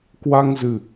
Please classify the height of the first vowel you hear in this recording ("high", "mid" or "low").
low